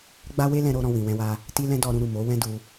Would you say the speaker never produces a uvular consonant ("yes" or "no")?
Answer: yes